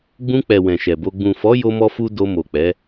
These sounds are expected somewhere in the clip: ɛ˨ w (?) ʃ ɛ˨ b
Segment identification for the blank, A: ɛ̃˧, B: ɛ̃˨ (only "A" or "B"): B